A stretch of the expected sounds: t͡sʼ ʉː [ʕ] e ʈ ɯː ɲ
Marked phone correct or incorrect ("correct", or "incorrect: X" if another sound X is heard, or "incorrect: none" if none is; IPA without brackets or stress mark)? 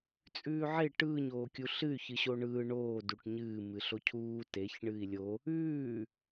correct